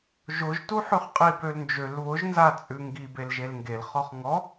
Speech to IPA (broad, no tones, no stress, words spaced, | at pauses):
ʒʊʒtuħʉχ qʼibølnd͡ʒøl βʊʒnzat͡sʼʉ ŋɡibel ʒelŋɡelχɔχ ŋɔ